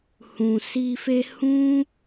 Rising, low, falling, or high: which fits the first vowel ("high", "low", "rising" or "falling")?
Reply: low